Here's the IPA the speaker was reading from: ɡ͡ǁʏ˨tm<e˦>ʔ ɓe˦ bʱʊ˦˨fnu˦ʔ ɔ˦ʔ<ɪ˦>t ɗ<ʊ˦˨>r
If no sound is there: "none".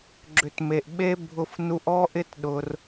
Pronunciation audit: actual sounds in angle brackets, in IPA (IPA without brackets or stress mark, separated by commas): e˨, ɪ˦, ʊ˦